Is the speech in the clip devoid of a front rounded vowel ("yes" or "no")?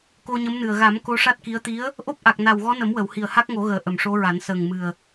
yes